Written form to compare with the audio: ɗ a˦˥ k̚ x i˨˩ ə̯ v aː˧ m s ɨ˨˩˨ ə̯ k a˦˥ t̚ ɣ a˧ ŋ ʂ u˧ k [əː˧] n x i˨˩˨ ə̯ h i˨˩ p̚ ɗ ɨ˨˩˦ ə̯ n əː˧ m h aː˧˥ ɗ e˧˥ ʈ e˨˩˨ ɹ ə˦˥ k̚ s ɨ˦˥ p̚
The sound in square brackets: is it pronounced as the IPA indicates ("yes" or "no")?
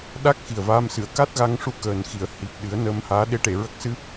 no